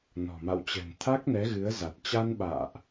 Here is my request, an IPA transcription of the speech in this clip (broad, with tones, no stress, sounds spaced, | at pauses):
n ɔ̤˨˩ m a̰˧˨ w t͡ɕ ɛ̤˨˩ n t̪ʰ a˦˥ k̚ n ɛ˨˦ ɣ ɨ˨˦ ə̯ z a˨˩ t̚ t͡ɕ a˧ n ɓ a̰ː˧˨ ʔ